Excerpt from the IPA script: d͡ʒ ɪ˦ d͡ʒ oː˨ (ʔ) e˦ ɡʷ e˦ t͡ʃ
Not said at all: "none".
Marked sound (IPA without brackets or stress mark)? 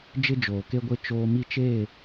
k